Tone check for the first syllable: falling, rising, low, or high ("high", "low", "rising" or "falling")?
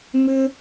high